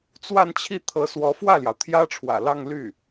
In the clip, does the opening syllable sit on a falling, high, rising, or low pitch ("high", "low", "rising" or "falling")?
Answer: falling